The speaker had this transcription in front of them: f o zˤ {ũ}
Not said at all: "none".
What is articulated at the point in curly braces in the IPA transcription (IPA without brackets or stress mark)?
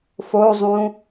ũ